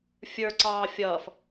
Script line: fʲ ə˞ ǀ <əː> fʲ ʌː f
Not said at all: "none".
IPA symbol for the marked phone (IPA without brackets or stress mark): ɑː